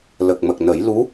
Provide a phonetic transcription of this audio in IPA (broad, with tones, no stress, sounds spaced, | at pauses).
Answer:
l ə˨˩ k̚ m ə˨˩ k̚ n ə˨˩˦ j l u˧˥